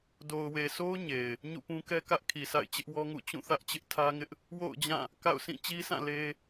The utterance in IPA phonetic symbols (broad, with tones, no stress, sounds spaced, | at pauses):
d o˨ ʊ̯ w e˨ sʰ o˦ ʊ̯ ɲ e˨ ɪ̯ | ɲ ṵ˦˨ p ũ˦ k ɛ˦ k ä˦ ʔ kʰ i˨ sʰ a̰˦˨ ɪ̯ t͡ɕ ɪ˦ ʔ w ɔ˦ ŋ ṵ˦˨ t͡ɕ ũ˦˨ θ ä˦ ʔ t͡ɕ ɪ˦ ʔ tʰ ä˦ ŋ ɪ˦ ʔ | w o̰˦˨ ʊ̯ d͡ʑ ã˦˨ | k a̰˦˨ ʊ̯ sʰ ĩ˦˨ t͡ɕ i˦ sʰ ã˦˨ l e˦